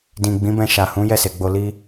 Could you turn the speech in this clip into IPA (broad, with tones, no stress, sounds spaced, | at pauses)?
d ĩ˨ ɡ͡b ĩ˨˦ b ɛ̃˧ ʃ a˨ h ũ˨˦ j ɛ˦˨ s e˨ ɡ͡b o˧ l i˧